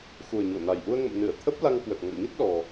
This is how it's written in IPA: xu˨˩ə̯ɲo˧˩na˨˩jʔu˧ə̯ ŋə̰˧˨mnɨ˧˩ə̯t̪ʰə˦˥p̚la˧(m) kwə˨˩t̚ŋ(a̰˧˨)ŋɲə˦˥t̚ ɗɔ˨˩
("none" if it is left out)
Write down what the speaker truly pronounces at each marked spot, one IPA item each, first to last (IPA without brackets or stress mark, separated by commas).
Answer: ŋ, a̰˧˨